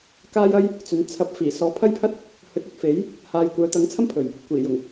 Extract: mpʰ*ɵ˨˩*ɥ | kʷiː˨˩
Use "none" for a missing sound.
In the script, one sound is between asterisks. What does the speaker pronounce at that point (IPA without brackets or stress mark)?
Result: ɵ˨˩